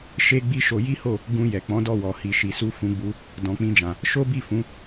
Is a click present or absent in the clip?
absent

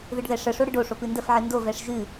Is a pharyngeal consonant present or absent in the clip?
present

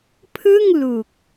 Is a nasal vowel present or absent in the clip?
absent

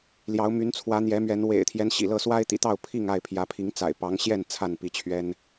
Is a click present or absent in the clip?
absent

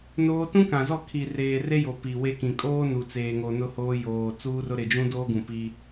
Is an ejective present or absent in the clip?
present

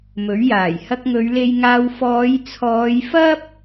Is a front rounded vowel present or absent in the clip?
absent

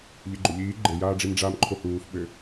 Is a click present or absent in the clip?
present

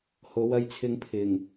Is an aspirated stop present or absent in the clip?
present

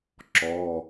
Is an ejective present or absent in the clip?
absent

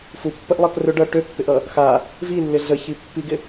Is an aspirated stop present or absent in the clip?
absent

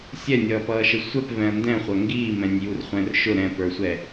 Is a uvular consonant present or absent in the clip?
present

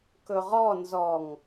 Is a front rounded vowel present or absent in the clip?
absent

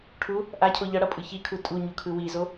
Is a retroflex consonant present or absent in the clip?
present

